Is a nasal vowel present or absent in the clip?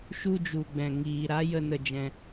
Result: present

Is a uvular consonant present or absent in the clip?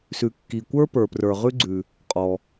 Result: present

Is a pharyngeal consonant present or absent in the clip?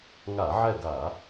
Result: present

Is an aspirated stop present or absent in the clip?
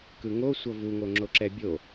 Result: absent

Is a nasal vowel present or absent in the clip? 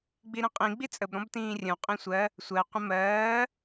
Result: present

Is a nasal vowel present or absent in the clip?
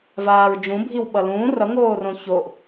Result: present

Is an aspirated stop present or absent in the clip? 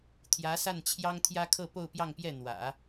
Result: present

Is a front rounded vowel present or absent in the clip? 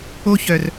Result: present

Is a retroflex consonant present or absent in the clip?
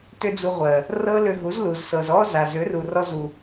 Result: absent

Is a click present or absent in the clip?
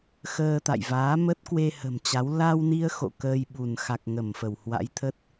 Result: absent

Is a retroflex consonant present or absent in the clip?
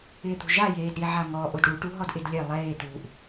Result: present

